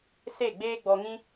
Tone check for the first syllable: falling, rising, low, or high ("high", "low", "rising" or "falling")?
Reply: falling